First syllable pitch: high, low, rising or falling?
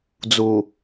low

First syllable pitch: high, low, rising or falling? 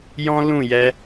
high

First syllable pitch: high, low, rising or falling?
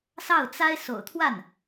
falling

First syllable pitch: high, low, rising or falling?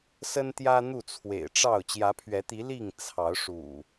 high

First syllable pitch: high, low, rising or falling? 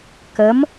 rising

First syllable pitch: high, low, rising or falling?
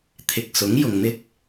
low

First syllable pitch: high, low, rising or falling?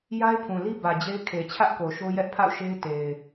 high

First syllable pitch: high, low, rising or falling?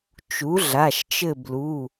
rising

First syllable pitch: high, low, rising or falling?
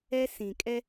high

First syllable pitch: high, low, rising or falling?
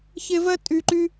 high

